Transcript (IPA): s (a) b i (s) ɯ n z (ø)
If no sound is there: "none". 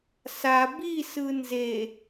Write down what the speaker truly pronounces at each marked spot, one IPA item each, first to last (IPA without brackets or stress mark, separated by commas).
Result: a, s, e